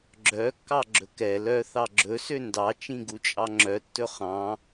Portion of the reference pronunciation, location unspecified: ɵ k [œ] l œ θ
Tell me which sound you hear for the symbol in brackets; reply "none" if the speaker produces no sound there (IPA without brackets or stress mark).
ɛ